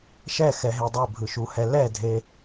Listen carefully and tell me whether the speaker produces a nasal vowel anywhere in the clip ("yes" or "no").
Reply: no